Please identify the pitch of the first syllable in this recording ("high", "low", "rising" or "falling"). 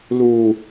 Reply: low